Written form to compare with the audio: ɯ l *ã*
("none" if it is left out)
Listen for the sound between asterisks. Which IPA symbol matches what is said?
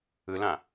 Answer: ã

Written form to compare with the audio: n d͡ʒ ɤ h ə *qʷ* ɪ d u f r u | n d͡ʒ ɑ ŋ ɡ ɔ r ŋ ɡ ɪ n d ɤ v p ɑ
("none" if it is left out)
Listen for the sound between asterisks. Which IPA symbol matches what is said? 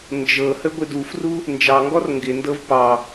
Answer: ɡʷ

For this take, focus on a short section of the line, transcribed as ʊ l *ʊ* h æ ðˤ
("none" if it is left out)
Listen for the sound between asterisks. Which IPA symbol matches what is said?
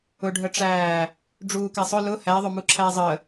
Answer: ʊ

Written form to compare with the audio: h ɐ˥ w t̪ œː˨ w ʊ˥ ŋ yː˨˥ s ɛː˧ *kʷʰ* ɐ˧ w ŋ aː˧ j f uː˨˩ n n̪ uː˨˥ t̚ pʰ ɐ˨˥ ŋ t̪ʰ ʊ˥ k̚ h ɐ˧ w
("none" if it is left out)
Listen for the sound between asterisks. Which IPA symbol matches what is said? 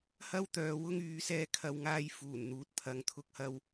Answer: kʰ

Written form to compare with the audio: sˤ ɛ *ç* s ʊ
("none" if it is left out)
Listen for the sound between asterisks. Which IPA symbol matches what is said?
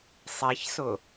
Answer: ç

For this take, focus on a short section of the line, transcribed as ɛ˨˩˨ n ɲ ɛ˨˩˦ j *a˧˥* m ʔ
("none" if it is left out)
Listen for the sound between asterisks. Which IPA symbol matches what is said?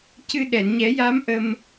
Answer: a˧˥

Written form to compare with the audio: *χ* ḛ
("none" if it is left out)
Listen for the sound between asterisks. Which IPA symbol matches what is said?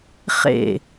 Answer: χ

